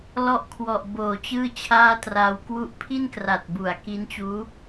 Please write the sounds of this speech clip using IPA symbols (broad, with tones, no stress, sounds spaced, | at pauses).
l ɔ˦˥ ʔ kʰ w ɔ˨˩ ʔ b oː˨˩ t͡ɕ ɯː˥˩ t͡ɕʰ aː˥˩ t r aː˧ w k w u˦˥ ʔ pʰ i˥˩ n k r a˨˩ t̚ b u˩˦ a̯ k i˦˥ n t͡ɕ uː˦˥